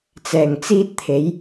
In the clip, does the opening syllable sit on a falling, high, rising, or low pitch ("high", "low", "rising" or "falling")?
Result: low